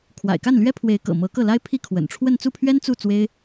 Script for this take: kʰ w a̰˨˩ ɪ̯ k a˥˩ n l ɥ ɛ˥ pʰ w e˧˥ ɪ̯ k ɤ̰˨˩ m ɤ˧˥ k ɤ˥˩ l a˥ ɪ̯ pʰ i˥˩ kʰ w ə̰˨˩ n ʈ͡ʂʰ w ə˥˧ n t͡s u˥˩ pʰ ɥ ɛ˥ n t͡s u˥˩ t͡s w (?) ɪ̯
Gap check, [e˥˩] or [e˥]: e˥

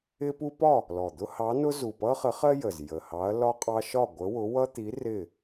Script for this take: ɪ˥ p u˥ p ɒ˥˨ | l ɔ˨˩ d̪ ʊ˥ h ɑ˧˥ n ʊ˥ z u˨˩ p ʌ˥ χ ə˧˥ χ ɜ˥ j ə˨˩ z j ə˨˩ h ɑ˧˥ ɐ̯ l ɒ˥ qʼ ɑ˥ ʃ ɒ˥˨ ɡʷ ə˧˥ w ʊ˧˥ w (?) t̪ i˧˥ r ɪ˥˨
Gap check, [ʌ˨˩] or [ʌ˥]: ʌ˥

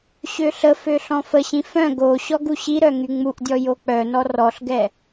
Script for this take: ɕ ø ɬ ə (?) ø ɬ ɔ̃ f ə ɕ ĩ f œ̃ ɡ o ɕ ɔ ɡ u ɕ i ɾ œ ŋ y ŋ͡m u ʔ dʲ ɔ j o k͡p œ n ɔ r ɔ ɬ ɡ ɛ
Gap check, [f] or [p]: f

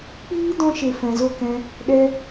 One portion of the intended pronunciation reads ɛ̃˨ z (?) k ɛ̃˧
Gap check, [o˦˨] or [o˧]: o˦˨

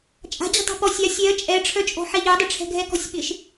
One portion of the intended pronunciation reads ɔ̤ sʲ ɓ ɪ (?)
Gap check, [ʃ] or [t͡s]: ʃ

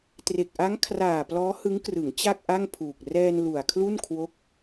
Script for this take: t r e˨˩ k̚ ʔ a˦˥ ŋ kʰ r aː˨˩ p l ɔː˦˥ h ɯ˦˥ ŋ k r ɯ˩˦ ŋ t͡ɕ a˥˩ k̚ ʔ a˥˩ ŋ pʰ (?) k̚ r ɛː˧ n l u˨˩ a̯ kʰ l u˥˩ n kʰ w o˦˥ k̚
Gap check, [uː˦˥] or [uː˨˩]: uː˨˩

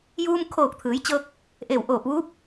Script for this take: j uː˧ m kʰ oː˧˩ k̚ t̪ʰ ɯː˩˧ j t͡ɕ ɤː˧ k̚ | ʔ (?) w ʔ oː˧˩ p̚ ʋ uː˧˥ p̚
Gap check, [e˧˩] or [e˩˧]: e˧˩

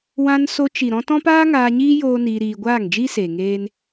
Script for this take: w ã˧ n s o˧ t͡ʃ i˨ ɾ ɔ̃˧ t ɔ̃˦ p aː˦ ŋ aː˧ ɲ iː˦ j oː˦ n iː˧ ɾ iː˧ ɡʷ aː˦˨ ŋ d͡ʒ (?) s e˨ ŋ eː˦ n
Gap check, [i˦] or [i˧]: i˦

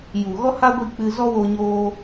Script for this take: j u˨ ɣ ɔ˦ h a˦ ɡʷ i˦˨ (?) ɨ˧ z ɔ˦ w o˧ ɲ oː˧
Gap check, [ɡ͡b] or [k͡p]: k͡p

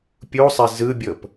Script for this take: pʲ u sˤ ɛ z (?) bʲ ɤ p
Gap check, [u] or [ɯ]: ɯ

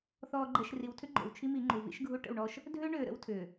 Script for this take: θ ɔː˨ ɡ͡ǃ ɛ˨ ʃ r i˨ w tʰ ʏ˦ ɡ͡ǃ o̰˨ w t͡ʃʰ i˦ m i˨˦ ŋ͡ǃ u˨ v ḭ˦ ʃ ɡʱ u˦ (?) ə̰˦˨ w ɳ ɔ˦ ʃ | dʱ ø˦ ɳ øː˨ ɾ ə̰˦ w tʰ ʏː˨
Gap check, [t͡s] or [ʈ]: ʈ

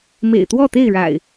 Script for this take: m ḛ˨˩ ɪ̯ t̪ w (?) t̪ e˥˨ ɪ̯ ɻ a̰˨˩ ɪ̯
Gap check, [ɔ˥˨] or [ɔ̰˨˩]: ɔ˥˨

